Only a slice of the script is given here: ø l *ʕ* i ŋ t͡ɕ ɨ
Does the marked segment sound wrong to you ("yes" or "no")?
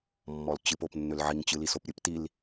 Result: no